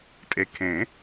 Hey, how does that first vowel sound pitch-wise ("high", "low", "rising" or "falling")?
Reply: low